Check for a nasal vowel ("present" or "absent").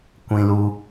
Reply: present